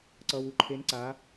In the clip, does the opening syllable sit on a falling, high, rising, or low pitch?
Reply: low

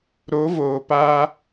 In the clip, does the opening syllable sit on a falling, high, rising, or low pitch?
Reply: rising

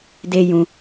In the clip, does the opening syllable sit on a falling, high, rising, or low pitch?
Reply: low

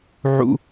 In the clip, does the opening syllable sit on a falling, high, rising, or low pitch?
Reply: high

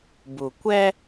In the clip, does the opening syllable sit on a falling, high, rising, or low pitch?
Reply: low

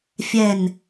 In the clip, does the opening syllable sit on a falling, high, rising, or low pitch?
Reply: low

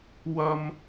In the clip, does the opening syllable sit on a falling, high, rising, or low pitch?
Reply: high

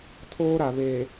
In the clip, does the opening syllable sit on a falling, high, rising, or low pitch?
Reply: high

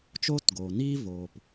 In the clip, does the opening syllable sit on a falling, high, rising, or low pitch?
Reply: high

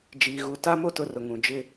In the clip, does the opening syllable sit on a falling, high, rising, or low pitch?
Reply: low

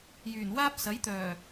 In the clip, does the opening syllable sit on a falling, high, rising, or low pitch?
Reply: low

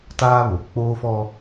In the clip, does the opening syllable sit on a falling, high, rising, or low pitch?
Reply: high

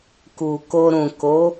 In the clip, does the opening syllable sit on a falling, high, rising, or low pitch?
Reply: low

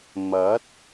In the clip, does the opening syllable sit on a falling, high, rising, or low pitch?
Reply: rising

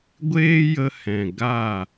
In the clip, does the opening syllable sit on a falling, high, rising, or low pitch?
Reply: high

